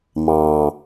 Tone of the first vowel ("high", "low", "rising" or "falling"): low